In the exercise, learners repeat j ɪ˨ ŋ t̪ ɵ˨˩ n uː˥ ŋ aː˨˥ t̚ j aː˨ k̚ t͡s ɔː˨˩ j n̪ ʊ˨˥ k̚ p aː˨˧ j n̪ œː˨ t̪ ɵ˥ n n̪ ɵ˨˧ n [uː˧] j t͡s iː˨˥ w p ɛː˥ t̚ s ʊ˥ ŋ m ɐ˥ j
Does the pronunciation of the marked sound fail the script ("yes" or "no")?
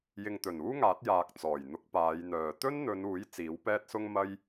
yes